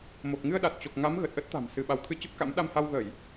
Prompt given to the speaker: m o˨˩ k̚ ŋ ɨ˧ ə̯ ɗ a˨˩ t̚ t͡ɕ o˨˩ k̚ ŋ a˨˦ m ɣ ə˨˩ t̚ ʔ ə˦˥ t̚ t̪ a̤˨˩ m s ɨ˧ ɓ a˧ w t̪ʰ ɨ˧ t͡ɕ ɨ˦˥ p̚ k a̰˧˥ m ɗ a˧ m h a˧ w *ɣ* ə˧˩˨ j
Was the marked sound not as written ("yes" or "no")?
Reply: no